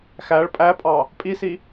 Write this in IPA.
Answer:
x æ ɭ pʼ æ pʼ ɑ | pʼ i s i

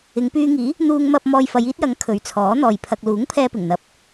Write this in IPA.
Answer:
ɪ˨˧ ŋ p yː˧ ŋ iː˨˥ | n̪ uː˧ ŋ m ɐ˧ p̚ m ɔː˧ j f ɐ˨˧ j iː˥ t̚ j ɐ˨˥ ŋ kʰ ɵ˨˧ ɥ t͡sʰ ɔː˨˥ n̪ ɔː˨ j pʰ ɐ˧ k̚ l uː˨˥ ŋ pʰ ɛː˧ p ɪ˨˩ ŋ n̪ ɐ˨˥ p̚

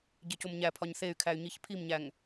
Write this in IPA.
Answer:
ɟ e c o m ɲ æ pʰ ɒ ɲ θ e y̯ kʰ æ y̯ ɲ i ç pʰ i m ɲ æ ŋ

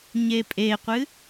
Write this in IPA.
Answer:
ɲ e pʼ e qʷ ɨ

